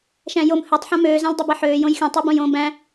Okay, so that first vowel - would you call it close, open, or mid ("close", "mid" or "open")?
open